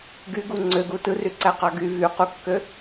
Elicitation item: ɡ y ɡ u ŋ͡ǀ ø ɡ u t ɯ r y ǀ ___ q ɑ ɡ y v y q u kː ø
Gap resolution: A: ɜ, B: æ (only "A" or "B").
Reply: B